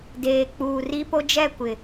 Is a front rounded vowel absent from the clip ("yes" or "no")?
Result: yes